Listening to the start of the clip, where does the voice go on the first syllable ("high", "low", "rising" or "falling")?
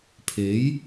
rising